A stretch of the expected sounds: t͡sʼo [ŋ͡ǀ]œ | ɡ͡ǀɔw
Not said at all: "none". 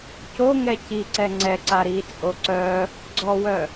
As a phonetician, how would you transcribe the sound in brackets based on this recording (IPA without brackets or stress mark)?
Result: ǀ